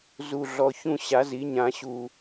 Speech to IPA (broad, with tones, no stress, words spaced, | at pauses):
zu˨˩ɮɔ˨˩ çũ˥˨ ɕa˩˥zi˩˥ɲã˨˩˦ ɕu˨˩